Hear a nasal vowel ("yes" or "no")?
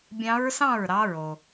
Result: yes